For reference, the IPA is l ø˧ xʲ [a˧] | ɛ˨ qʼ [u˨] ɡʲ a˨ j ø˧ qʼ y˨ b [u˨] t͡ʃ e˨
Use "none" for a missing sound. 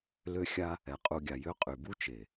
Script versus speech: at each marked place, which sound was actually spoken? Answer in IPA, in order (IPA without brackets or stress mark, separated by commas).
a˧, u˨, u˦